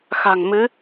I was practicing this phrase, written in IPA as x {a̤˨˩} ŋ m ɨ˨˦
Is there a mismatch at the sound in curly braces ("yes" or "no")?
no